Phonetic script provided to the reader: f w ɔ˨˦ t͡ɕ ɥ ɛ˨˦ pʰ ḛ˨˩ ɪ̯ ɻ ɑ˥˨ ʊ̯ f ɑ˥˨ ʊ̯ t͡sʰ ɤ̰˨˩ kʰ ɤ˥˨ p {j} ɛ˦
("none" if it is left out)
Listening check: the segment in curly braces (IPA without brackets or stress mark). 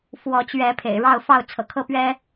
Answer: ɥ